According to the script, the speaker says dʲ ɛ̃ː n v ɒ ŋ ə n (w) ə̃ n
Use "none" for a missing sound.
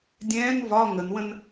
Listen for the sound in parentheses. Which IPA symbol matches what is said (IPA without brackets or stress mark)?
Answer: w